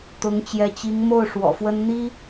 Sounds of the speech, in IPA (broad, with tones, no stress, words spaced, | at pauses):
t̪ʊ˧˥ŋt͡ɕjɛ˧˥ t͡ɕi˧˥ŋmo˥˩ʊ̯ ʂwɔ̰˨˩fwə˥n n̪i˥